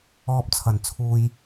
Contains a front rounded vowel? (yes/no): no